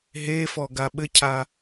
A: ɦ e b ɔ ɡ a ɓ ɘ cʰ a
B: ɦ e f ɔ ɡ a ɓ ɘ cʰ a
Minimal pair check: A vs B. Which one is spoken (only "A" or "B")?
B